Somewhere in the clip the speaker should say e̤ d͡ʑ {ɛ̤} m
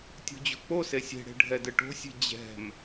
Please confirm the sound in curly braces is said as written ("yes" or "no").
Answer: yes